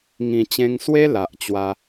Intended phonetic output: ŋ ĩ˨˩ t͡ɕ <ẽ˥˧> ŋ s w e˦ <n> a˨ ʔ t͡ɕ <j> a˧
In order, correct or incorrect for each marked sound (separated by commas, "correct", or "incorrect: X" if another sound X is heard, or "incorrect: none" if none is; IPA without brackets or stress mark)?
incorrect: ẽ˧, incorrect: l, incorrect: w